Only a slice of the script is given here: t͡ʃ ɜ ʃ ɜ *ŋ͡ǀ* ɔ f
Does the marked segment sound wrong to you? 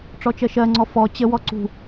no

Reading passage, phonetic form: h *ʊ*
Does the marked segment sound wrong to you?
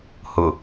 no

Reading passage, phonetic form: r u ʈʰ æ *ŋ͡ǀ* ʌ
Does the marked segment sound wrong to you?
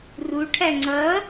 no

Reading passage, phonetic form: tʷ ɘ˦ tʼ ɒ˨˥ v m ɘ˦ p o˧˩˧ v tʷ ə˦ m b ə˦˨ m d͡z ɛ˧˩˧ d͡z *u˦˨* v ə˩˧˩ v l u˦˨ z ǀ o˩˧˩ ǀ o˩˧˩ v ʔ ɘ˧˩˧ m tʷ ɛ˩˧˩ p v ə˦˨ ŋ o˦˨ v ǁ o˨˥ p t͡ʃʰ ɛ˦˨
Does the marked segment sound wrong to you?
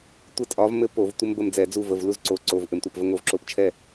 no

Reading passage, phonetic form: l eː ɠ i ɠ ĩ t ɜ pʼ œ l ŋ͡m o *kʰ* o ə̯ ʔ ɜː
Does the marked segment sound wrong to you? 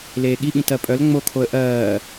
no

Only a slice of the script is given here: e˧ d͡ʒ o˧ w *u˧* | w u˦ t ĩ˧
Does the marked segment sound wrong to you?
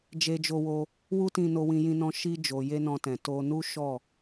yes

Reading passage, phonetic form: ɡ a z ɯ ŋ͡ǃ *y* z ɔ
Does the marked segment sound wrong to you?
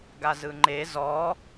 yes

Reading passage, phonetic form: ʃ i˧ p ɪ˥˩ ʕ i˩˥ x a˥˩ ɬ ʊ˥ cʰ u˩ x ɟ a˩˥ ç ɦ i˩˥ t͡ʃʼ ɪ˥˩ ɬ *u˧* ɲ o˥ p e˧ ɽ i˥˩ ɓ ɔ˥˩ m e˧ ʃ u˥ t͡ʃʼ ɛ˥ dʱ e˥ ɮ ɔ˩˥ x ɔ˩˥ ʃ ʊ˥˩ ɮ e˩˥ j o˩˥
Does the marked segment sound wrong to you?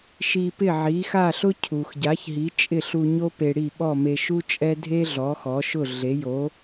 no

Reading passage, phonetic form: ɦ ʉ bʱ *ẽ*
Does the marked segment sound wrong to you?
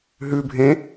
no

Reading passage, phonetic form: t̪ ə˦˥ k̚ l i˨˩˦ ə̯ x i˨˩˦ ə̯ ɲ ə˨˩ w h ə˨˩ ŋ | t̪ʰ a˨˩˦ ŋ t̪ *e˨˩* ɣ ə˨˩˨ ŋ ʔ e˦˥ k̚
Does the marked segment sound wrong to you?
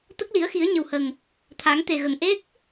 no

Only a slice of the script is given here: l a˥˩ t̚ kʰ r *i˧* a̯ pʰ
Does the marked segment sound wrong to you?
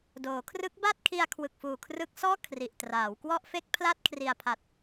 yes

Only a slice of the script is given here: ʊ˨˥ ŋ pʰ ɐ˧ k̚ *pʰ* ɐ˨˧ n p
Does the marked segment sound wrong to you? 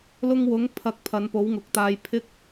no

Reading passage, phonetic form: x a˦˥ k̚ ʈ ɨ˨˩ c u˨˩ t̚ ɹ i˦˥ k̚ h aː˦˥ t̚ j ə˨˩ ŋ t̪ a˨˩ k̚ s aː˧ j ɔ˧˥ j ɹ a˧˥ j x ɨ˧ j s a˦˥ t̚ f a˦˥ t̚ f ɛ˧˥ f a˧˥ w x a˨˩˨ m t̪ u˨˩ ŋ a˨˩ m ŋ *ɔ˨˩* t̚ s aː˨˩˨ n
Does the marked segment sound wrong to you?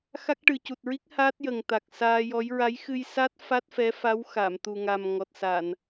no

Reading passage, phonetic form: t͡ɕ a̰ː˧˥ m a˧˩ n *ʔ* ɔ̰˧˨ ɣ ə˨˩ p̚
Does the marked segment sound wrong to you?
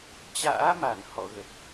yes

